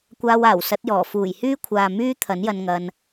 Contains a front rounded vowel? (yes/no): yes